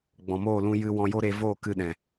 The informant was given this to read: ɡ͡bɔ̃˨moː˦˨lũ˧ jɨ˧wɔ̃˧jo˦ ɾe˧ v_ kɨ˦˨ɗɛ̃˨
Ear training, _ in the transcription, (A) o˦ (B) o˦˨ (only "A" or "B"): B